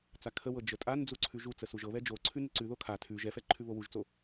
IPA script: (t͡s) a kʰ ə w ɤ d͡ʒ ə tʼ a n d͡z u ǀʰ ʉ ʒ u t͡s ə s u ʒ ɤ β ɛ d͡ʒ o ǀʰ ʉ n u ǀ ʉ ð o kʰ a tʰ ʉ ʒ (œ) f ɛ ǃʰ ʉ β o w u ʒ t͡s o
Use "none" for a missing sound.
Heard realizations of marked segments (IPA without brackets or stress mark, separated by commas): t͡s, ɛ